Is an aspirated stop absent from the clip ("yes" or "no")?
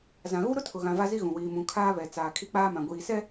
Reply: no